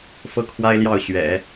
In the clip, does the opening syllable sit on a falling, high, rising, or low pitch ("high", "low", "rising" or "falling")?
falling